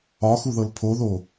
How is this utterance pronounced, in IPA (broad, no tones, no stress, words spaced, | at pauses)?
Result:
ɒxuðɤl pʰoðo